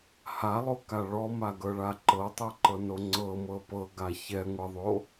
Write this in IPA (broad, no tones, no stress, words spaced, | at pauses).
halˠoka ɭɔmaɡɤɭa ǃɤtˤɛǃɤno ŋ͡ǀɤmɤ pɤɡa çɛŋʷɛðˤo